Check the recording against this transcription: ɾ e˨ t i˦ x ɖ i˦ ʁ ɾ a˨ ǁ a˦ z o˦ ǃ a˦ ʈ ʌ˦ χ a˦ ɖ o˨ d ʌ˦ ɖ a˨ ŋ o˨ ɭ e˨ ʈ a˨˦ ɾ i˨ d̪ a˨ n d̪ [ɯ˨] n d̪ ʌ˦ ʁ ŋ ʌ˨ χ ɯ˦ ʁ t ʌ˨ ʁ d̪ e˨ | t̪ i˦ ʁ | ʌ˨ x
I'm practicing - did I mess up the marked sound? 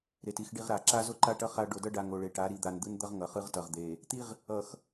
yes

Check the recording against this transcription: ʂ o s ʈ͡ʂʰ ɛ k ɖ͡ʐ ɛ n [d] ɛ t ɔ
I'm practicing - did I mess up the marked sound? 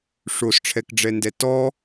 no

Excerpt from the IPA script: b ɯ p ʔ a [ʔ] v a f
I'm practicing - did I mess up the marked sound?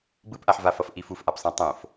yes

